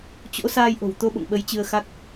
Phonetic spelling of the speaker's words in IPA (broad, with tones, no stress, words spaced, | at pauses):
t͡ɕo̰˧˥saː˧jʔo̤˨˩wt̪o˧ ɓo̰˧˨ŋɓə˨˦j t͡ɕɨ˧ə̯xa˦˥k̚